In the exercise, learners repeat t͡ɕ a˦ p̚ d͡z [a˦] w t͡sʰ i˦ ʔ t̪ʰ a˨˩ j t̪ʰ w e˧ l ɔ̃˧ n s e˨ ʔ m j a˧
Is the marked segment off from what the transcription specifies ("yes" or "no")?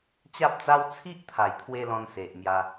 no